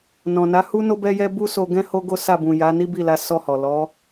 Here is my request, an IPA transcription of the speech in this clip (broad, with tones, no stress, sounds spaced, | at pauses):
n ɔ̃˨ n a˨˦ h u˦ n o˦ b ɛ˦ j ɛ˦ b u˦ s o˧ ɡ ɛ̃˦ h o˦ ɡ o˦ s a˦˨ b ũ˨ j a˨˦ n i˦ b i˦˨ l a˨˦ s ɔ˦˨ h ɔ˨ l ɔ˨˦